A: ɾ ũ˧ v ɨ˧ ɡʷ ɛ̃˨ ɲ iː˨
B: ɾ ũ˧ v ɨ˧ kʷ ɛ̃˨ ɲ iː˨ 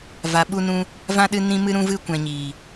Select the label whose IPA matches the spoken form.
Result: B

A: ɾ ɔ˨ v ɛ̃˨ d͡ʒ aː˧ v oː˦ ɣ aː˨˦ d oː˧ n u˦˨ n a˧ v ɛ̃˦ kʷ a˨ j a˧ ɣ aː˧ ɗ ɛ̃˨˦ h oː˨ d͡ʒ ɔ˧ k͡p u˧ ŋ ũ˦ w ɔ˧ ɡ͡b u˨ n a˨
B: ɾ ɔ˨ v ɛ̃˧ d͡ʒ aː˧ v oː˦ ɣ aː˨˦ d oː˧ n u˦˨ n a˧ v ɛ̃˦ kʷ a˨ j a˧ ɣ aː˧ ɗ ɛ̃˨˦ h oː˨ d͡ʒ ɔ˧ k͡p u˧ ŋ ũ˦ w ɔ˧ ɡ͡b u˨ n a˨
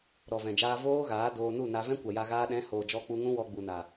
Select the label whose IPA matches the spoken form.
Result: A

